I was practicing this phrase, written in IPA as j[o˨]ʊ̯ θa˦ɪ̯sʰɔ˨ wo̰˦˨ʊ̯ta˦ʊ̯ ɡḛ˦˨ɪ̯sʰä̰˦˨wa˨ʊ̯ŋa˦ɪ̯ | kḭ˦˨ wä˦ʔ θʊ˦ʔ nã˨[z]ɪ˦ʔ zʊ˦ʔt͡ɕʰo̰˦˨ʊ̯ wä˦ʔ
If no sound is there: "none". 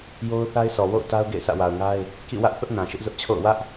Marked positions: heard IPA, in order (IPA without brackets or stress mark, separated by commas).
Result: o˦, ʃ